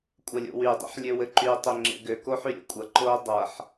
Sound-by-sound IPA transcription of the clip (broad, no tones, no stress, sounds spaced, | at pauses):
kʷʼ ɐ lʲ o̰ w y dˤ ḛ ħ lʲ ø w ɘ ǃ y tˤ ø ŋ͡ǁ ḛ ɡ ø k o ħ y ɾʲ ḛ kʷʼ ɐ ǃ o ə̯ dˤ ɐ ħ